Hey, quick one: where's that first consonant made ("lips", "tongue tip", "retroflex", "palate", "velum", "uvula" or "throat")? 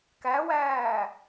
velum